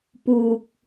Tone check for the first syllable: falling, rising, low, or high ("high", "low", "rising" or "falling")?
low